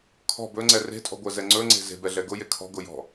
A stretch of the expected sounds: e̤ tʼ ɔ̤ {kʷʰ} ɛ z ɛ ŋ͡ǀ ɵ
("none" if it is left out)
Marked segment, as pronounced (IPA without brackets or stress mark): ɡʷ